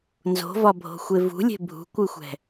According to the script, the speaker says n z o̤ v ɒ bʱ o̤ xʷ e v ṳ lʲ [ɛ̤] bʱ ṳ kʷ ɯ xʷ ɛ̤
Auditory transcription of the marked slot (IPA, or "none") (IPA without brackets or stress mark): e̤